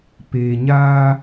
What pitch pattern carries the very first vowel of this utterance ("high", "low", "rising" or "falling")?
low